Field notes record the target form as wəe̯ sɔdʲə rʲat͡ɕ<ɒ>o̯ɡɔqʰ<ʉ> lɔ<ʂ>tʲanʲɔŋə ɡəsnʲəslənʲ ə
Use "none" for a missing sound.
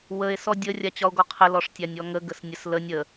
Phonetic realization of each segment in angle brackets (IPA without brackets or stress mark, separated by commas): ɒ, ə, ʂ